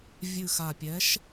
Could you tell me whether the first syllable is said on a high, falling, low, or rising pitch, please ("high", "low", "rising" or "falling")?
low